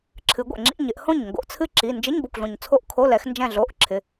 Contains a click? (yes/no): yes